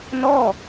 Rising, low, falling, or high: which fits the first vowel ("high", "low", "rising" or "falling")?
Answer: falling